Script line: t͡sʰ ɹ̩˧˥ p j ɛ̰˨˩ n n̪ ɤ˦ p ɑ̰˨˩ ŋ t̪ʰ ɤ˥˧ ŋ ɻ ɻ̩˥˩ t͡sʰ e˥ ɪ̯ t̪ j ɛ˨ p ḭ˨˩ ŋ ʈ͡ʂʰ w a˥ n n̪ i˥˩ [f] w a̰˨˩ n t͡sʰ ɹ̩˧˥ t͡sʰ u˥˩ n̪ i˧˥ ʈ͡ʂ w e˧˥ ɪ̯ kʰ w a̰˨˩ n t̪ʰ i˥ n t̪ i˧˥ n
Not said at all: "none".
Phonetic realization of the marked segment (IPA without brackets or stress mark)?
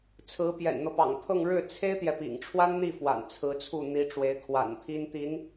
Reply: f